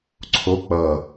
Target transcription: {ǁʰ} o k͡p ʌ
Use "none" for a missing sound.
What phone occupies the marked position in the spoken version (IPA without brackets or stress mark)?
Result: ǀʰ